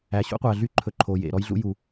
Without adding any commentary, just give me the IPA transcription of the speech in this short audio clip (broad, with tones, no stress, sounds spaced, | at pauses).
æ˨ ɕ ṵ˦ qʷ æ˨ ɮ y˦ ǃʰ ɵ˨ ǃʰ o˨ j ḛ˨ ɾ ɔ˦ j ɮ ṵ˦ j u˨